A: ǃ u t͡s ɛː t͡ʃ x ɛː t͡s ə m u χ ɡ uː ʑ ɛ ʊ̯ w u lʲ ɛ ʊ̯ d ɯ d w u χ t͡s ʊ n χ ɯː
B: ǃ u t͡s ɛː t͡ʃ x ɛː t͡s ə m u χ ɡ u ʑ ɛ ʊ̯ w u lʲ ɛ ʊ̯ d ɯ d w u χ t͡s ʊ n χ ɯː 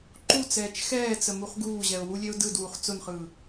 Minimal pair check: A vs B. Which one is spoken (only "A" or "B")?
A